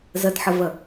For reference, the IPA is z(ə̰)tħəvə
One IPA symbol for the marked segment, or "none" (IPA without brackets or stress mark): ə